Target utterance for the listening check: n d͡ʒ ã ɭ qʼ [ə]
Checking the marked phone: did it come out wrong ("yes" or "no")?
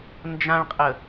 no